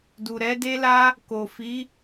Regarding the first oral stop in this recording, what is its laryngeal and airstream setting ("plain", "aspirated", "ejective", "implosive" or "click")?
plain